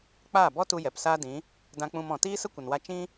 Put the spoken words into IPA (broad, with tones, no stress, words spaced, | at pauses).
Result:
k͡paː˦˨bɔ˦tu˧ jɛ˨psaː˦dĩ˨˦ | dã˧k͡pũ˧mɔ̃˨ tiː˦sə˦kʷə˨nwa˧ t͡ʃĩ˦